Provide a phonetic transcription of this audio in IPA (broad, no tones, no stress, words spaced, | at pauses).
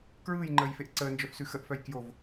kɹɯːjŋ͡ǃəːjfeʔ ǀəːnd͡ʒœfsʉ xəʔfœj kjov